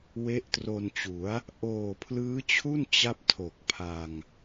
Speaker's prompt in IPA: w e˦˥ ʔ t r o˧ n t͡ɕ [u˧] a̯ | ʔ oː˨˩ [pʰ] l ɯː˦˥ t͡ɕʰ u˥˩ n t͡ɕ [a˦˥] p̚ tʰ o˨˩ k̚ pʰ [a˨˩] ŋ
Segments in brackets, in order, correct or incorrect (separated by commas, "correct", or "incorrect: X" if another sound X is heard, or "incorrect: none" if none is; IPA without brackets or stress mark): incorrect: u˩˦, correct, incorrect: a˥˩, incorrect: a˧